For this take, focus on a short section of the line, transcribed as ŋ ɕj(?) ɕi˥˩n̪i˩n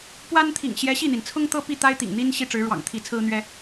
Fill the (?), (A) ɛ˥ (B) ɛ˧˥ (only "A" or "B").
B